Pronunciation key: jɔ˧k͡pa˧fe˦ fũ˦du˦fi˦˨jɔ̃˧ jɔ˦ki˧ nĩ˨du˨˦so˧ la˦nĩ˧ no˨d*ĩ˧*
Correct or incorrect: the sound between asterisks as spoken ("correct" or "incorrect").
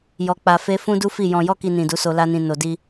incorrect